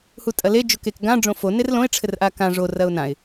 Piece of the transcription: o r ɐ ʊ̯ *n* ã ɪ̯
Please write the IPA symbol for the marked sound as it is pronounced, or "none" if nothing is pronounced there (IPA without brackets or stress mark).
n